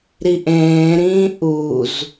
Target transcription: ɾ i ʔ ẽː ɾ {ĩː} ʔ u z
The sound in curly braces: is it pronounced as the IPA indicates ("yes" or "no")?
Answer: yes